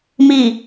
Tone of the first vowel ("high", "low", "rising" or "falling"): low